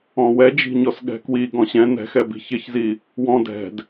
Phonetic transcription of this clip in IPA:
ɔ̃ w ɛ d͡ʒ i̤ ɲ ɔ s ɠ ɛ̤ k w i ɡ ɔ̃ ɕ ɛ̃ n ɛ̤ x ɛ b i̤ ç ɪ ç z i | w ɔ̃ d ɛ̤ d

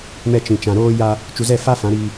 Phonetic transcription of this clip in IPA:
m ɛ˨ t͡ʃ ĩ˨ t͡ʃ ã˨ ɾ oː˦ j a˦ | t͡ʃ u˨ z ɛ˦˨ f a˦ f ã˨˦ ɾ i˦

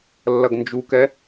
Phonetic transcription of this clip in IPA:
lː ɐ ɡ n d͡ʒ u k ɛ

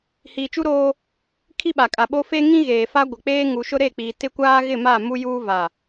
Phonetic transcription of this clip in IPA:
h iː˨ t͡ʃ u˦ ɾ oː˦ | kʰ i˦ ɓ a˨ kʼ a˨ ɓ o˦ f e˦ ŋ ĩ˦ ɣ eː˨ f a˦ ɡʷ ɪ˨ k͡p eː˦ ŋ u˨ ʃ ʊ˦ ɾ e˦˨ k͡p iː˨ t ɪ˦ kʷ aː˦ ɣ ɪ˦˨ m a˦˨ m u˦ j uː˦ v a˨

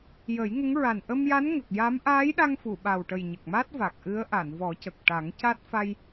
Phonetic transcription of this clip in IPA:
j ə˨˩˦ j ŋ ə˧˥ ŋ ɹ a˨˩ n ʔ ə˧ m j a˧˥ n ŋ ə˨˩ k̚ j a˧˥ m ʔ aː˧˥ j ɗ a˧ ŋ f u˨˩˨ ɓ a˨˩ w ʈ ə˨˩ j ɲ ə˨˩ k̚ m a˦˥ t̚ v a˨˩ k̚ ʔ ɨ˧˥ ə̯ ʔ a˨˩˨ n v ɔ˨˩˦ c ə˨˩ k̚ ʈ a˨˩˦ ŋ c a˦˥ t̚ f a˧ j

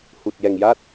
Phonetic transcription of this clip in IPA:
h u˨˩ t̚ j ɛ˨˩ ŋ j a˦˥ t̚

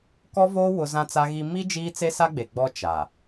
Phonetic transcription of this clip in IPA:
k ɔ˦ v oː˦ w ʊ˦ z ã˦ t͡s a˦ ɣ i˦ m i˦ d͡ʒ iː˦ t͡s e˦ s a˦ ɡ͡b e˨ ɡ͡b ɔ˦ t͡ʃ a˨

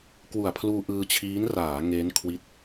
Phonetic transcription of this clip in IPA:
k w u˨˩ a̯ pʰ l uː˧ ʔ ɯː˧ t͡ɕʰ iː˦˥ n r aː˩˦ ŋ eː˦˥ n kʰ w i˦˥ t̚

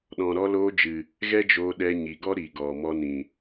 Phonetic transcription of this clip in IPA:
ɗ ɔ̃˨ ɾ ɔ˧ l oː˧ d͡ʒ ɨ˨ | ɣ ɛ˦ d͡ʒ oː˧ ɗ ɛ˧ ɲ i˨ ɡ ɔ˦ ɾ i˨ ɡ ɔ˨ m ɔ˧ n ĩ˨

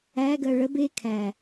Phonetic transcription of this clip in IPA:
æ ɡ ɜ ɭ ə b e kʰ æ

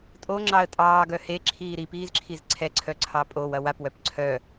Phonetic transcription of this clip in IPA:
tʼ o ŋ͡ǁ ɑ ə̯ tʼ ɑː ɡ œ h e ǁʰ iː ɾ i p iː z ǁʰ i z ǀʰ ɛ ǀʰ œ ǀʰ ɑ pʼ o w ɐ w a p w œ p ǀʰ œ

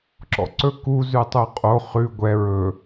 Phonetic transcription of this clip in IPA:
ǁ ɔ̰ ǀ ɵ k u z ʉ tˤ u qʼ o χ ʉ ɡʷ ɛ ɹ ɵ

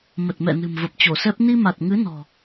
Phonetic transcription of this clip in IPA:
m ə˨˩ t̚ m ɛ̰˧˨ n ɨ̤˨˩ m v ə˨˩ p̚ t͡ɕ o˧˩ s ɛ˦˥ p̚ n i˧ m a˨˩ t̚ ŋ ɨ˨˦ n ɔ̤˨˩

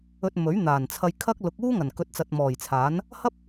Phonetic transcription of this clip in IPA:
ɵ˧ t̚ m ɵ˨˥ ɥ n̪ aː˨˩ n t͡sʰ ɐ˧ j kʰ ɐ˥ k̚ l ʊ˨˥ k̚ uː˥ ŋ ɐ˨˩ n k ɵ˨˥ t̚ t͡s ɐ˨ t̚ m ɔː˨˩ j t͡sʰ aː˨˥ n | h ɐ˥ p̚

